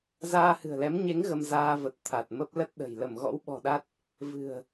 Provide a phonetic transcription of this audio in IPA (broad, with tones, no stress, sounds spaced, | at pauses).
z aː˧ h ɨ̤˨˩ ə̯ l ɛ˨˦ m ɲ e˨˦ ŋ ɣ ə˧ m z aː˧ v ə˨˩ t̚ t̪ʰ a˨˩ t̚ m ə˦˥ p̚ l ə˦˥ t̚ ɗ ə̤˨˩ j l ə˧˩ m ɣ ɔ̰˧˥ w ɓ ɔ̤˨˩ ɗ a˦˥ t̚ | v ɨ̤˨˩ ə̯